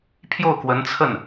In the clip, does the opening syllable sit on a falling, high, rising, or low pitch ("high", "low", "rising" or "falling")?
falling